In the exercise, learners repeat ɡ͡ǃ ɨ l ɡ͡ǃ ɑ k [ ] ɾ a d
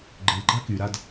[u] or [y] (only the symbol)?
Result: y